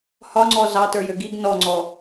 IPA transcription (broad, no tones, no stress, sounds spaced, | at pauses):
h ɒ ŋ͡ǀ ɔ z ɑ t ə˞ j ø ɡ i ɡ n ɔ ŋ͡ǀ ɔ